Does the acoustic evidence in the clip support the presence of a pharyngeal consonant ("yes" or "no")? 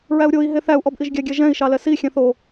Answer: no